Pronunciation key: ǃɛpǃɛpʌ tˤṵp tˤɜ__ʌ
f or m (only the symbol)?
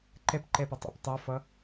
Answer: f